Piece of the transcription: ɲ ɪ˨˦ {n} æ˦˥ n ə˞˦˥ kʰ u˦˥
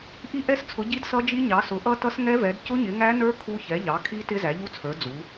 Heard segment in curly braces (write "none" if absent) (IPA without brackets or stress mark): ŋ